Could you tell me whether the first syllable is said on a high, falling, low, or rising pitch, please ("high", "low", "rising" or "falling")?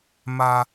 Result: high